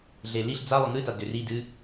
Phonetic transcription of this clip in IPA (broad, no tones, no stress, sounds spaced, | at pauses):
ɮ e l i ɬ d͡z a lˠ ʊ ŋ ɨ d a d ʏ r i d ɨ